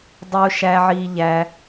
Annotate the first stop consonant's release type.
plain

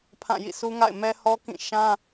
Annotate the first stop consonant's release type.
aspirated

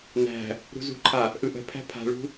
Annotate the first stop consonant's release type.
click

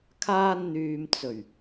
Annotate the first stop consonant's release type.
aspirated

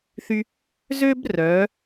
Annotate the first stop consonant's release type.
plain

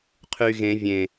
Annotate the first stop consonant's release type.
aspirated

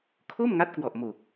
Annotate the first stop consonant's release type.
aspirated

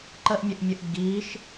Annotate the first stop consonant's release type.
click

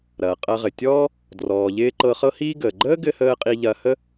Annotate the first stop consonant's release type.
ejective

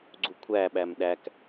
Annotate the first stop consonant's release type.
click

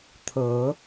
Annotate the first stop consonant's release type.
aspirated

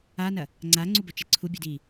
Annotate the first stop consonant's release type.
click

